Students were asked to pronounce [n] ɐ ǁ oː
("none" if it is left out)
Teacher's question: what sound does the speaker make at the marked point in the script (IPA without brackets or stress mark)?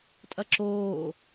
tʼ